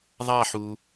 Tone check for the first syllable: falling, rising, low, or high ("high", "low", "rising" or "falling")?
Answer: falling